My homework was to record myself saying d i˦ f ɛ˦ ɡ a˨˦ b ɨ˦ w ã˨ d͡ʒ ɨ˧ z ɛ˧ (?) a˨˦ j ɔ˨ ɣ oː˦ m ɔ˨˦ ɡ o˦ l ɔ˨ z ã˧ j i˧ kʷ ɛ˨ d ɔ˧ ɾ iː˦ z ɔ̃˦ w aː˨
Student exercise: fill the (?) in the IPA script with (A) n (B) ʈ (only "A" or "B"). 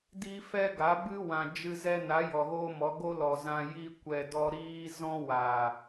A